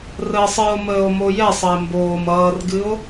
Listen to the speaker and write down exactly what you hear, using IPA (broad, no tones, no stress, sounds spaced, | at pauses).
r əː sˤ ɨ o̯ m əː o̯ m o j ɛ sˤ ə e̯ m b oː m ʌː r ɡ ɨ o̯